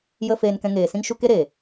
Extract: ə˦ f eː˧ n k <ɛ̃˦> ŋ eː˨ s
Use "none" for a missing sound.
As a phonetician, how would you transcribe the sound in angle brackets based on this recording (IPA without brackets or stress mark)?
ɛ̃˧